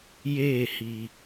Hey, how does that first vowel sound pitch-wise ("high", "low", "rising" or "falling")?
falling